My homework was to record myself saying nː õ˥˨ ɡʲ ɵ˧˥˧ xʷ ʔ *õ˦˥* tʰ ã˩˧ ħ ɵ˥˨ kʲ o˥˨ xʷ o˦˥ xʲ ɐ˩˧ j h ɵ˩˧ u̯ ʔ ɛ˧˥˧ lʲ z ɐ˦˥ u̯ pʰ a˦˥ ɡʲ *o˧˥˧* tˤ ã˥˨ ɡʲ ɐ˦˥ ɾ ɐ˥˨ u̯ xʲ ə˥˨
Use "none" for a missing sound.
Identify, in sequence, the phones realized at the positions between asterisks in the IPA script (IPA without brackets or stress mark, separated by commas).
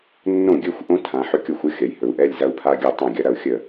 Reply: õ˦˥, o˥˨